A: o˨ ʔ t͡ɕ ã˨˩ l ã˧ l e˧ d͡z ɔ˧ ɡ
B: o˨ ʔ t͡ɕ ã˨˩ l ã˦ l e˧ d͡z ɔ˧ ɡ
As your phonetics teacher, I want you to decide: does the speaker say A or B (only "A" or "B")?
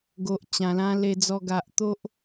A